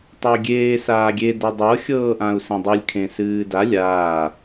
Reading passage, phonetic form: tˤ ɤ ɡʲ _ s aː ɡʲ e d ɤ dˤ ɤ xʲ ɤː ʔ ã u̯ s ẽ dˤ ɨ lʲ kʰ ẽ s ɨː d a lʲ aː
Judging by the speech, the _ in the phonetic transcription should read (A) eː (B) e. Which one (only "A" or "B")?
A